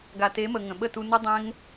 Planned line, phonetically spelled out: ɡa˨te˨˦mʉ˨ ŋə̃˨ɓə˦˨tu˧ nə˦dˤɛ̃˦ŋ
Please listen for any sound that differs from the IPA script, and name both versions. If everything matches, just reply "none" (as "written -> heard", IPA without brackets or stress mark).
ʉ˨ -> ə˨